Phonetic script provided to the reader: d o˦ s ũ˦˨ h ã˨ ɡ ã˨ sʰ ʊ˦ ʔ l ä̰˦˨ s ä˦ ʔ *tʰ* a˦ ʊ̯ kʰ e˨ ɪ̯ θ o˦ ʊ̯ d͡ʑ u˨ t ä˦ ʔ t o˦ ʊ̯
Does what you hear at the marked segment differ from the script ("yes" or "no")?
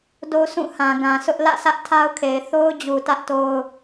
no